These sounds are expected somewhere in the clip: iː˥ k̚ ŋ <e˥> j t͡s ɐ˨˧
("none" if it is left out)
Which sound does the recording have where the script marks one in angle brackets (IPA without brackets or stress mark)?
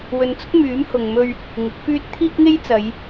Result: e˥